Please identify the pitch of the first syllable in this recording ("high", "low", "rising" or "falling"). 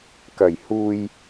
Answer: low